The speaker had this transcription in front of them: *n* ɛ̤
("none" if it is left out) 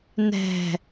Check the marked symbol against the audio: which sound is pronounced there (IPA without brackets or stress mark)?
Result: n